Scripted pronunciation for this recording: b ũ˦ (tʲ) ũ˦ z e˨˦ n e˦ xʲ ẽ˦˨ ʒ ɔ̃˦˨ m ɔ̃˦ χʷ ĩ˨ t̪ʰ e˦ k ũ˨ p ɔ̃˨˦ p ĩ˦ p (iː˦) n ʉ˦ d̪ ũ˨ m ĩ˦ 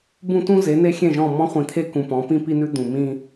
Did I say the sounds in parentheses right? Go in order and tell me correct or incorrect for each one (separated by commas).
incorrect, incorrect